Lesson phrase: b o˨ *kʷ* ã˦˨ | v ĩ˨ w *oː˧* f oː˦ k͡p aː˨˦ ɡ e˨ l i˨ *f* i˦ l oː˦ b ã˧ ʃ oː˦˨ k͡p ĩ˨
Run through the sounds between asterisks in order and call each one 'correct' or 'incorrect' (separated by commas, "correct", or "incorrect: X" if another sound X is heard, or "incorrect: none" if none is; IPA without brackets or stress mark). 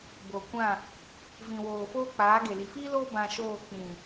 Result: correct, incorrect: oː˨, correct